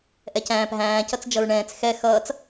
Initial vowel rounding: unrounded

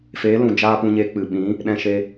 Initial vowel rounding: unrounded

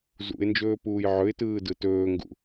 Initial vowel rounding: rounded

